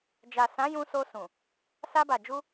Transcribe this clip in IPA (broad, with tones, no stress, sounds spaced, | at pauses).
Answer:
d͡ʒ a˨ s ã˨˦ j ũ˧ s o˧ s ũ˨ | s a˧ b a˨ d͡ʒ u˧